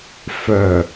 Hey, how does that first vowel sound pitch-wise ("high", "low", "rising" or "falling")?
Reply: low